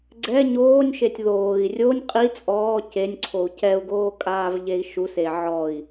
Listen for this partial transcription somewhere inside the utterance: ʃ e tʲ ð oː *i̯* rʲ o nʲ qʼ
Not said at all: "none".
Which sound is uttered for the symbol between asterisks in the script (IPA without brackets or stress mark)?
i̯